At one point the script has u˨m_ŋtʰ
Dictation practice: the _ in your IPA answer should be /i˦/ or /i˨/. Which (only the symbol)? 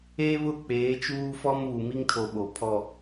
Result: i˦